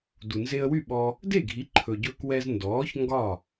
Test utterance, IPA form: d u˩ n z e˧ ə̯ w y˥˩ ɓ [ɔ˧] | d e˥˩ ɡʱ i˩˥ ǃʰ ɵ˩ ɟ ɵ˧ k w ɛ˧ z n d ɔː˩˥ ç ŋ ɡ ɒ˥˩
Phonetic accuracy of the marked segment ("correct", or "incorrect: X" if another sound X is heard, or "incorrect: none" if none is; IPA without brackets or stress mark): correct